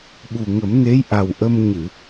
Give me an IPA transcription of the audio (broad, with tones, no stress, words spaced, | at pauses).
ɓu˨˩ŋə˨˩˦mne˧˥j ʔa˨˩wʔə˧m ɲɨ˨˩˨